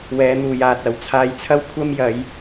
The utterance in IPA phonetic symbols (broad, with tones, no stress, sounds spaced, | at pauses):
w ɛː˨˧ n̪ uː˨ j aː˨ t̚ ɐ˨ w t͡sʰ aː˨ j t͡sʰ ɐ˧ w kʷʰ ɐ˧ m j ɐ˨˧ j